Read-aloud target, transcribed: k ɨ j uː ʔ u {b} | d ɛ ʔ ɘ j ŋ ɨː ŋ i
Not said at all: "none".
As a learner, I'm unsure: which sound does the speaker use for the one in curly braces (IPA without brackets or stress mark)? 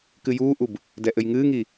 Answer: b